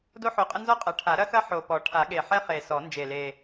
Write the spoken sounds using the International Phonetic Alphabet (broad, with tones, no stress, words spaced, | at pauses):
do˥ħo˨˦qʼə˥ nzɔ˥qʼɐ˨˩˦ʈʰa˨˩˦ ɾɐ˥xɐ˥ ħo˨˩pɔ˨˩˦ ʈʰa˨˩˦ɠe˨˩ħɛ˥ χe˨˩ sɔ˨˩˦ nd͡ʒe˨˩le˨˩